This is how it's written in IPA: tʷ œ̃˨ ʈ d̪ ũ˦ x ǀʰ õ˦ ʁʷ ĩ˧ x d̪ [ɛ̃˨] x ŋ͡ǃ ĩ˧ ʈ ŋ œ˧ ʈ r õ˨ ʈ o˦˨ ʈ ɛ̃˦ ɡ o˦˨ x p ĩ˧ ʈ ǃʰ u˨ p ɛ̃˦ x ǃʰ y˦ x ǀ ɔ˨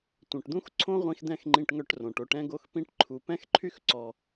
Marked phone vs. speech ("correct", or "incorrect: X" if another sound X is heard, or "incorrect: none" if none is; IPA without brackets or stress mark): incorrect: ɛ̃˧